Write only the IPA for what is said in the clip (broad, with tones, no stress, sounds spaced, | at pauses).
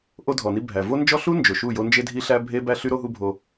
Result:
ʔ o˦ dʱ ɔ˨ n i˦ bʱ æ˨ v o˦ n d͡ʒ ɔ˦ ɬ u˦ n d͡ʒ o˨ ʃ u˦˨ j o˦ n d͡ʒ e˦ dʱ i˦ ɬ æ˦ bʱ e˦ b æ˦ ɬ y˦ ɾ o˦ ɦ u˦ bʱ o˦